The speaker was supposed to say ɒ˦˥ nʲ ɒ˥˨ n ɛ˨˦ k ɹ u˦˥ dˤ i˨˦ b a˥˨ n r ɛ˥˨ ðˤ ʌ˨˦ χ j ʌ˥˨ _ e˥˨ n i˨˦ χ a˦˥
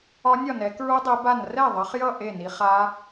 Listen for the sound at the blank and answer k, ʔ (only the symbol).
ʔ